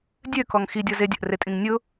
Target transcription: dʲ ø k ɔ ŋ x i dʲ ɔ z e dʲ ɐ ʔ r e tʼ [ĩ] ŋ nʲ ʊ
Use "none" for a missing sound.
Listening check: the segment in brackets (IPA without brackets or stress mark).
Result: ĩ